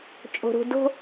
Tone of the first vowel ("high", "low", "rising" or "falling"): low